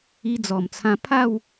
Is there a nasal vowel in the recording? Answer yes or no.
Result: yes